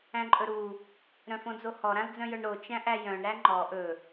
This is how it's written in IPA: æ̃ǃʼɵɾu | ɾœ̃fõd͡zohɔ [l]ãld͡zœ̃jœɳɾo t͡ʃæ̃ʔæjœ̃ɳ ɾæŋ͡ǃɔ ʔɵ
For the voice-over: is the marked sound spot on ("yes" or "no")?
no